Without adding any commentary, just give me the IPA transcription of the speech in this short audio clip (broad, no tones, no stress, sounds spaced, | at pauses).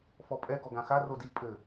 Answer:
f ɔ pʼ ɛ ɡ ɔ ɡ ã x a r o d i pʼ ɘ